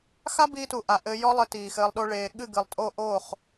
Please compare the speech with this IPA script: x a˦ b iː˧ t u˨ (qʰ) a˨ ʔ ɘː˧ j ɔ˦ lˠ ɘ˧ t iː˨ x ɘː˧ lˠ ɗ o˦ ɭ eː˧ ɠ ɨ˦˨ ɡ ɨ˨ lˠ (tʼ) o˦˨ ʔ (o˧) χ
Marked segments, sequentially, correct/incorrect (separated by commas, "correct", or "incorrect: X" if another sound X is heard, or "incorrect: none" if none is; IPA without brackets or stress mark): incorrect: ʔ, correct, incorrect: o˦˨